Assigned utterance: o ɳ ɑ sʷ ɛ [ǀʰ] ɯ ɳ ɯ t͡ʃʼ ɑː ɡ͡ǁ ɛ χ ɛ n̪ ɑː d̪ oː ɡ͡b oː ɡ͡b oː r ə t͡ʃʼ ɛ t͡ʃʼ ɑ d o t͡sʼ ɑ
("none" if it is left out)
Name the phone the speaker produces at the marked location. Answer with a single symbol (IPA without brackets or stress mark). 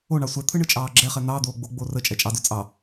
t̪ʰ